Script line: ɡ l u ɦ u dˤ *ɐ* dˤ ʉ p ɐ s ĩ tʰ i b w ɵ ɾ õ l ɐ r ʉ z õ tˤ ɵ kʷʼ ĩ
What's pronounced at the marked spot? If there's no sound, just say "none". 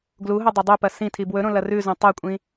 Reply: ɐ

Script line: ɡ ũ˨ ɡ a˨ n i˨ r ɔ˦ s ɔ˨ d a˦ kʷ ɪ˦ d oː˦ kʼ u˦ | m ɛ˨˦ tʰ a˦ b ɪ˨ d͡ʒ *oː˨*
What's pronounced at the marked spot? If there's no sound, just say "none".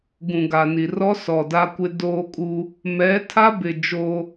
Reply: oː˦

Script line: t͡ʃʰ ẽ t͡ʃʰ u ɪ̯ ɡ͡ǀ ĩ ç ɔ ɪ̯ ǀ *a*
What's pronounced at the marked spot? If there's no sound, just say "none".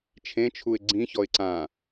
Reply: ã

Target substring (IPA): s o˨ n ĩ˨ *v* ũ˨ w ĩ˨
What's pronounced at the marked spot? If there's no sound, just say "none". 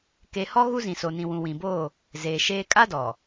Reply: w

